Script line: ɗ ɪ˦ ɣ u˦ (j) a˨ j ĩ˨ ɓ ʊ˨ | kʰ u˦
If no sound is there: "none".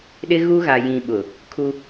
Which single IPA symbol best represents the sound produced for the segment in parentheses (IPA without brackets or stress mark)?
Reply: ɣ